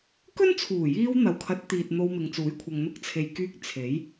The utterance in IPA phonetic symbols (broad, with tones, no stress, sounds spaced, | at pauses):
k ɵ˥ n t͡sʰ uː˨˩ j iː˧ w n̪ ɐ˨˧ w kʰ ɐ˨˥ t̚ t̪ iː˨ t̚ n̪ o˧ w m ɪ˨ ŋ t͡s uː˨˥ j kʷʰ ɐ˨ ŋ n̪ ʊ˧ k̚ t͡sʰ e˨ j k yː˧ k̚ t͡sʰ e˨˥ j